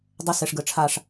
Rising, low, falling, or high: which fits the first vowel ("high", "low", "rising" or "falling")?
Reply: high